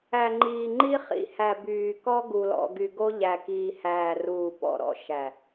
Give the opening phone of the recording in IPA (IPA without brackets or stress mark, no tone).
æ